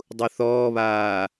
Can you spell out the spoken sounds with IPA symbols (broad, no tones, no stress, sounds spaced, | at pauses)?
dˤ u θ ɔː β aː